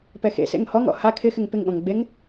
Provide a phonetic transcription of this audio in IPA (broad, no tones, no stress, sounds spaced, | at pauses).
p ɛ x ḛ s ḛ ŋ h ɔ ŋ ɔ̰ h a kʰ ɪ x ɪ ŋ p ɪ ŋ ɠ ɔ̃ ŋ ɡ͡b e ŋ